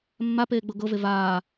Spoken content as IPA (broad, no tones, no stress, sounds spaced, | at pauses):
mː a p eː ɡ͡b ɤ ɡ ɤ v e v aː